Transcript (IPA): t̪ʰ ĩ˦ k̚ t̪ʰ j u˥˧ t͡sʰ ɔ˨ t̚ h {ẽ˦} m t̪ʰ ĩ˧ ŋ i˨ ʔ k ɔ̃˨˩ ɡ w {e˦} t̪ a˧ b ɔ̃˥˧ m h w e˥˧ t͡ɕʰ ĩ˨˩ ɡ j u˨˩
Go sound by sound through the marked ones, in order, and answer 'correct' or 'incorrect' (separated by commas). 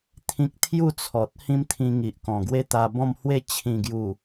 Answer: incorrect, correct